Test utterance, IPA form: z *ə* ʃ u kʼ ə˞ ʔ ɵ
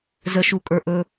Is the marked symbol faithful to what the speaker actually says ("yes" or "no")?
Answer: yes